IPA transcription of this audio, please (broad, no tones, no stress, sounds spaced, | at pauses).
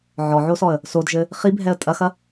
ʕ ɔ ʕ o s ɔ ə̯ | s o d ʒ ɘ | χ i bʱ ɛ ə̯ tʼ ɐ x ɐ